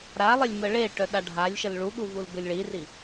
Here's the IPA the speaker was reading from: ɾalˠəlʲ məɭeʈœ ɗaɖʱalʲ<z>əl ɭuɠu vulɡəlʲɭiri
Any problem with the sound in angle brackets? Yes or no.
yes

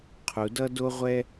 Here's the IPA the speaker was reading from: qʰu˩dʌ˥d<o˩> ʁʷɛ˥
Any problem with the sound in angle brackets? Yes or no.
yes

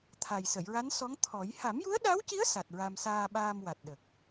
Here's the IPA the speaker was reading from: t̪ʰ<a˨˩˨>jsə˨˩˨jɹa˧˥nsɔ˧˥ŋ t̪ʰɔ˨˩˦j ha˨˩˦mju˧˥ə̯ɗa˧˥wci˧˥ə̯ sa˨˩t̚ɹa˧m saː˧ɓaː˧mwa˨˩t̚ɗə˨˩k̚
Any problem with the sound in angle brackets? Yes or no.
yes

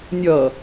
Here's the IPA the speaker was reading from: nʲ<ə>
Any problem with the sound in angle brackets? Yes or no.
yes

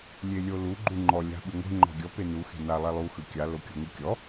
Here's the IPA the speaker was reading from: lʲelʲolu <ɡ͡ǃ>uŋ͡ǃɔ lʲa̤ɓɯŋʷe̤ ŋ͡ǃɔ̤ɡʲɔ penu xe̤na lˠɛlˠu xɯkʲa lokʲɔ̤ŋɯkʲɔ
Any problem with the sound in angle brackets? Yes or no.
no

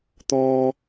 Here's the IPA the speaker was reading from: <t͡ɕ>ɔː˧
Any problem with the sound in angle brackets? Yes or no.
yes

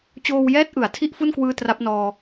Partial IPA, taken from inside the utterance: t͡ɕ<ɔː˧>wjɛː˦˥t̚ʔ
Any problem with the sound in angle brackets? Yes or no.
yes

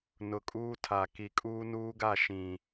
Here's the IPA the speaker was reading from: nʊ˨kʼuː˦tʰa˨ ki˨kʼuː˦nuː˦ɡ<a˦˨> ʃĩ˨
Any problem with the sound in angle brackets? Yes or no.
no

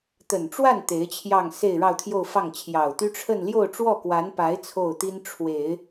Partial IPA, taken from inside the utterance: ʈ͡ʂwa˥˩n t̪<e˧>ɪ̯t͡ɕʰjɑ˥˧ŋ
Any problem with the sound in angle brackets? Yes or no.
yes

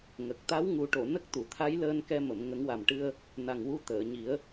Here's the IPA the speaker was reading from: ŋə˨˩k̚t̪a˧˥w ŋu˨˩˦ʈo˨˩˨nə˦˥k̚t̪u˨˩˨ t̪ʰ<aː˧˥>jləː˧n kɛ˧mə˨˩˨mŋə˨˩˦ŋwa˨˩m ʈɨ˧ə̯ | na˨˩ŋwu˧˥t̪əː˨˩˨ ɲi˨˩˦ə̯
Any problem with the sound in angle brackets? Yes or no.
yes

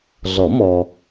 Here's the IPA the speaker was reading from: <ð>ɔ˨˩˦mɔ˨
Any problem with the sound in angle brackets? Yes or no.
yes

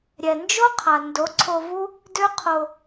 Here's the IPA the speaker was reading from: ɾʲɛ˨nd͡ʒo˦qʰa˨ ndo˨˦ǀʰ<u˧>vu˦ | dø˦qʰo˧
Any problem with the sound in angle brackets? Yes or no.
yes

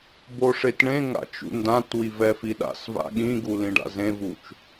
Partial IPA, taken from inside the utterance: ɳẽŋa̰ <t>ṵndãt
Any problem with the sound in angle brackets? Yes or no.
yes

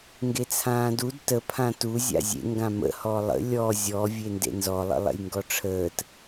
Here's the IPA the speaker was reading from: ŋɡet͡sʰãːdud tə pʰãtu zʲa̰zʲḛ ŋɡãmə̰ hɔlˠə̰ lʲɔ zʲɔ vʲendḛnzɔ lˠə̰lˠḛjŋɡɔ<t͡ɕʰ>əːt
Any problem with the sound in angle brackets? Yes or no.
yes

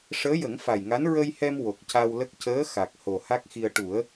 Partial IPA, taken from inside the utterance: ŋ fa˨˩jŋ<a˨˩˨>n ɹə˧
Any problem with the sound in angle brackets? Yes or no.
yes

